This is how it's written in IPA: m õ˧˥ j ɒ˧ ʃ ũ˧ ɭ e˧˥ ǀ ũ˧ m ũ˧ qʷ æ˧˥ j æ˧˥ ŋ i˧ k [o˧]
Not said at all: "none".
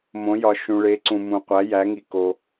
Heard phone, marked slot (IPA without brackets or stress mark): o˧